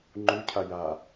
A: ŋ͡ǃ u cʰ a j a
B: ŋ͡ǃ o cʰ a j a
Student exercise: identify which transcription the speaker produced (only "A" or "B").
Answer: A